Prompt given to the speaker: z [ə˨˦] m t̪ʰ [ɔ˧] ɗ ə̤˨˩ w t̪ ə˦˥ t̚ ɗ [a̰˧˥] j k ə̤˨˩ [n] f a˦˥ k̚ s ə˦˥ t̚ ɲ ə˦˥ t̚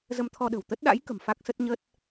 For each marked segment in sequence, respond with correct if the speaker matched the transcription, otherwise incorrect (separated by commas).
incorrect, correct, correct, incorrect